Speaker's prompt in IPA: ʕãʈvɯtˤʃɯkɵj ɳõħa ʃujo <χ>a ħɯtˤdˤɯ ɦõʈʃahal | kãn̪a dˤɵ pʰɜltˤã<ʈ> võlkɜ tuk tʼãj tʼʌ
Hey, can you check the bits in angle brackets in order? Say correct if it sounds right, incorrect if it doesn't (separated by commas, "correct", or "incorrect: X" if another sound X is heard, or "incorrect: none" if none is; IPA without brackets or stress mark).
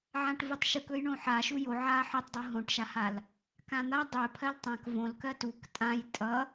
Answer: incorrect: ʕ, incorrect: k